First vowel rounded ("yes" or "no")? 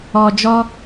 yes